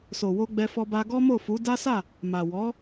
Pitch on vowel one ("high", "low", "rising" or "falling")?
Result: low